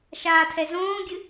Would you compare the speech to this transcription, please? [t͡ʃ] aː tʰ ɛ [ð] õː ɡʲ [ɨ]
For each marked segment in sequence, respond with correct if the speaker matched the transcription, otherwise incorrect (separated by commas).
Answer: incorrect, incorrect, correct